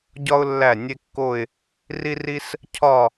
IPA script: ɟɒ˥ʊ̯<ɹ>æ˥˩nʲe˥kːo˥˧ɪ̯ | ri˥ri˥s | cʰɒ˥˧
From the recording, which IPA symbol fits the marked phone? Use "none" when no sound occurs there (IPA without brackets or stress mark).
lː